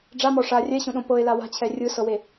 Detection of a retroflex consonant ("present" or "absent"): present